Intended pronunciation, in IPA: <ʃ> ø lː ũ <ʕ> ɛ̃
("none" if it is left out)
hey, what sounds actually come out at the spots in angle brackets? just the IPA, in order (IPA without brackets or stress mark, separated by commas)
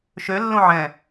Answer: ʃ, ʕ